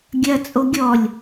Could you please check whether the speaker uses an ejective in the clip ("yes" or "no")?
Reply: yes